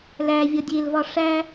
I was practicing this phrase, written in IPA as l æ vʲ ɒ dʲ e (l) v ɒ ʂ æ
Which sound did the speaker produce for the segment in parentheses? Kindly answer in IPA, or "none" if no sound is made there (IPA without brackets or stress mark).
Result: l